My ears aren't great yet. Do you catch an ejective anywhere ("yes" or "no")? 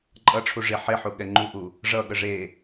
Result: yes